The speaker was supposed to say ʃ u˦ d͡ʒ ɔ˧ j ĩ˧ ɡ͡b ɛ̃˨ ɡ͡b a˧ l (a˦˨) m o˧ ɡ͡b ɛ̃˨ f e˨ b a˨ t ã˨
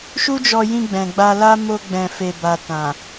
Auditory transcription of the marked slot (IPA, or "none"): a˦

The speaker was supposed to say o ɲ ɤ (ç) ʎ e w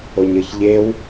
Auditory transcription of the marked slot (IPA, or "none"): ç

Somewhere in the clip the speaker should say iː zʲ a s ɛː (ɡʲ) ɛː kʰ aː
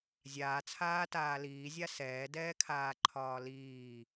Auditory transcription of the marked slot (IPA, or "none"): d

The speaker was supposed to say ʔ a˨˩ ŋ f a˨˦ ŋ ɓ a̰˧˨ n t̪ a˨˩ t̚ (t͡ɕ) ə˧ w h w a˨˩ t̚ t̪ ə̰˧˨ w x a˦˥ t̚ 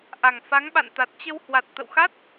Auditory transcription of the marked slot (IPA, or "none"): t͡ɕ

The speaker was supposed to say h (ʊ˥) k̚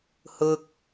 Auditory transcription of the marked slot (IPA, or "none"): ʊ˧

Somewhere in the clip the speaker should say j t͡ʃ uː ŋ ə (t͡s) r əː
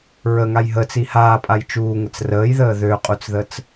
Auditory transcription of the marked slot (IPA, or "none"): t͡s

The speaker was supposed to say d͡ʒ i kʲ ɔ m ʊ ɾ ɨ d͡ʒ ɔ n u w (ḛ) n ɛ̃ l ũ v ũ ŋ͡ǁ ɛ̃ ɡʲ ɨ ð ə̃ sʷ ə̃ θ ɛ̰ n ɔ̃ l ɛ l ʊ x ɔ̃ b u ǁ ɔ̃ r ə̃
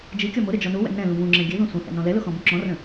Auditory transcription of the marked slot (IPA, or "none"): ɛ̰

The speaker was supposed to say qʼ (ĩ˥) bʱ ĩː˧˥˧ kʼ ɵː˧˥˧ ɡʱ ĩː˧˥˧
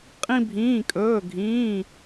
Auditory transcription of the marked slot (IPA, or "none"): ĩ˥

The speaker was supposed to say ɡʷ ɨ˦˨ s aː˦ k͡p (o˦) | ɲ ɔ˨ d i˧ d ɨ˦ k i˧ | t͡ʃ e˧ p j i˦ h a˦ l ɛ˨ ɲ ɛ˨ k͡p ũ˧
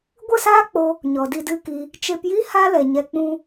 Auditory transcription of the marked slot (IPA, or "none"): o˦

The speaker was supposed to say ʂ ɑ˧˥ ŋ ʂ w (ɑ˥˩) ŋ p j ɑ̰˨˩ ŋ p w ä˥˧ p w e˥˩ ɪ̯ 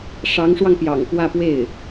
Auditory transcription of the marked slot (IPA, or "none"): ɑ˧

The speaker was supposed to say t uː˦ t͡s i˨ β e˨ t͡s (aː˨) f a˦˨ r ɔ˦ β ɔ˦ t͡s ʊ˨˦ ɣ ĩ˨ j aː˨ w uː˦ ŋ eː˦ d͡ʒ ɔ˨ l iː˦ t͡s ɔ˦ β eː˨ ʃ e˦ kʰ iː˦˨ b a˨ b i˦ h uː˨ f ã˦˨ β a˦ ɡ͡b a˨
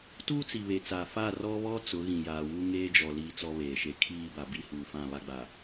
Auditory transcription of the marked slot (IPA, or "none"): aː˨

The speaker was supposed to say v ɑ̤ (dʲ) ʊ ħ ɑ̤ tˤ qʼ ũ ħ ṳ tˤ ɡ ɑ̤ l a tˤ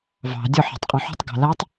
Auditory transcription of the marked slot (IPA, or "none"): dʲ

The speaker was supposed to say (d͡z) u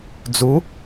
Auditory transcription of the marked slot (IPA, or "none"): d͡z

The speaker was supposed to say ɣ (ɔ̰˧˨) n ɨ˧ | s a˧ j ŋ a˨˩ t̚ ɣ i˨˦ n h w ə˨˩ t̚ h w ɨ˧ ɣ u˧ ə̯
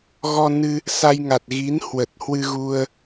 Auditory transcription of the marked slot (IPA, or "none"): ɔ˧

